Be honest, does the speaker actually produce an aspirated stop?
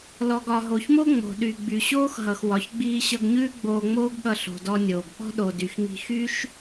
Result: no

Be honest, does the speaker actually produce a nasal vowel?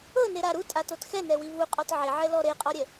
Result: no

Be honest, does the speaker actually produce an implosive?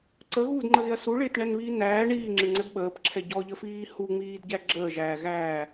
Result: yes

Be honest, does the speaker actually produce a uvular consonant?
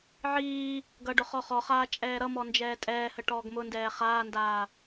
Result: yes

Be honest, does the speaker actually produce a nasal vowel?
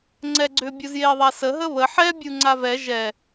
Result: no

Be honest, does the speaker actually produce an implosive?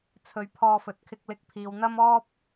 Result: no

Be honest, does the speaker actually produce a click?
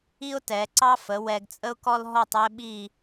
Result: yes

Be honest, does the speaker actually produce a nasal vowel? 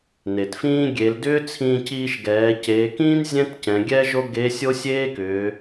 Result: yes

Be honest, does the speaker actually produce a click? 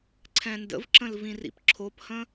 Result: yes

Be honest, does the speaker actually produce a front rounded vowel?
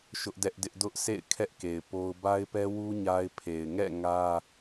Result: no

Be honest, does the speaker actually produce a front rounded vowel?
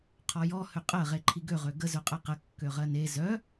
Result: yes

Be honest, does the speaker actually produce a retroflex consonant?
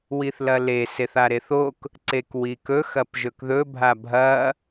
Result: no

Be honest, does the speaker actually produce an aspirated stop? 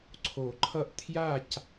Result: yes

